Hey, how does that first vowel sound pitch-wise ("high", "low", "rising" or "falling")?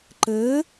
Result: rising